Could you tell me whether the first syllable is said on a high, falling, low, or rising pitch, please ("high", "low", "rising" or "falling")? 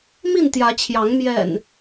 falling